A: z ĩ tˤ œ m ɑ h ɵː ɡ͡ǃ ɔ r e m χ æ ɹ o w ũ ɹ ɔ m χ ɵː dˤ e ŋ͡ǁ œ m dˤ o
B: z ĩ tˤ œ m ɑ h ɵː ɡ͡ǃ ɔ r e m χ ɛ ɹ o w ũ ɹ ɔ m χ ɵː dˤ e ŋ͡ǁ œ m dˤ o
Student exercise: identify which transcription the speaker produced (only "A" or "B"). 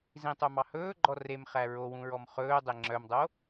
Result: A